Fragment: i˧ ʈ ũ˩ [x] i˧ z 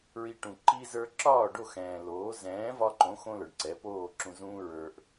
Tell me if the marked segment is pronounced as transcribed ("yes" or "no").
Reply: no